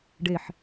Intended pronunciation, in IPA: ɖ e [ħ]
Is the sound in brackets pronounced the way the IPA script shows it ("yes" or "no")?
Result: yes